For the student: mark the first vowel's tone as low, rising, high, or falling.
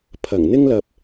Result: low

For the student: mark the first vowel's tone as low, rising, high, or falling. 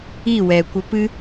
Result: falling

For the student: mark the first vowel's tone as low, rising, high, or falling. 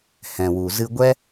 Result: low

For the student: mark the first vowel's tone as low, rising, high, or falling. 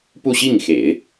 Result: falling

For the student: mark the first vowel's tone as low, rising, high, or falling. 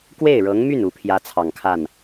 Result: falling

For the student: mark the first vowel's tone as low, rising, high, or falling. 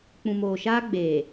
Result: low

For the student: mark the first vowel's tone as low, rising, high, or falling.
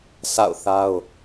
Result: falling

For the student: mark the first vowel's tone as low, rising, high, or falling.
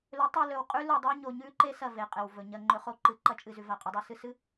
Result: rising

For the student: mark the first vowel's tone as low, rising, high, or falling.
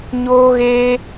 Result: high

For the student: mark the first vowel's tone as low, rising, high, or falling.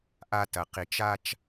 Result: low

